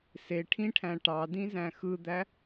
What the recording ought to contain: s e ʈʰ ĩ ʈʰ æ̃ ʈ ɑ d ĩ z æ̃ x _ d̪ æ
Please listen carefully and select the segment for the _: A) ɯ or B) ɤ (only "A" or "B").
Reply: A